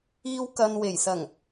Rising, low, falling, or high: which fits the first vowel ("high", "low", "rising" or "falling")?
high